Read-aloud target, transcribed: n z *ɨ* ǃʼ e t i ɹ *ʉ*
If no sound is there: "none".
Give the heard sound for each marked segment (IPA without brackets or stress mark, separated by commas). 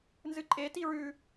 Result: ɨ, ʉ